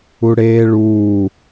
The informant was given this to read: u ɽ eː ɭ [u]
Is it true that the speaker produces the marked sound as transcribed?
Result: no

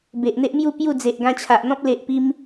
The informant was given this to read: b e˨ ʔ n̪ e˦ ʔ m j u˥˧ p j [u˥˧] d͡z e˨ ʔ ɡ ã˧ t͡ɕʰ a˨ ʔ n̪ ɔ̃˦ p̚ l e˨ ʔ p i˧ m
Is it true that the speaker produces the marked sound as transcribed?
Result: yes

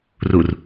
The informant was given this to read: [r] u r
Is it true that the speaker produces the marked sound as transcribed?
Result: yes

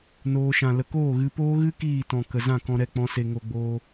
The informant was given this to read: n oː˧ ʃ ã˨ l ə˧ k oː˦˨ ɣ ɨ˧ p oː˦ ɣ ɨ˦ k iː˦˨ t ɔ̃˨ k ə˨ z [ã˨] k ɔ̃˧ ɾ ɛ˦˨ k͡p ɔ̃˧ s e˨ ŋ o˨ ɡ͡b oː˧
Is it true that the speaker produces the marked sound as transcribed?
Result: no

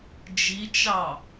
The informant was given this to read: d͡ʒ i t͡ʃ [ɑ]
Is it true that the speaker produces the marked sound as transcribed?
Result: yes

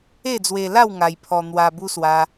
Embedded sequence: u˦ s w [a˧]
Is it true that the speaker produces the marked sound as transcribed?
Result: yes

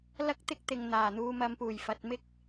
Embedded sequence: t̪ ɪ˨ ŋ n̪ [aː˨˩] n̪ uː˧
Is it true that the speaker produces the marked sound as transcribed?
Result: yes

